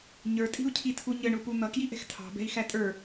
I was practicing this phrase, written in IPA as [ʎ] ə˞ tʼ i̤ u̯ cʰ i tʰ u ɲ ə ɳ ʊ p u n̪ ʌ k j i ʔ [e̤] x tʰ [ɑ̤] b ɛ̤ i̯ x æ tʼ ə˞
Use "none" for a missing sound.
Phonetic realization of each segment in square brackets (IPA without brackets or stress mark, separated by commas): ɲ, ɛ̤, ɑ̤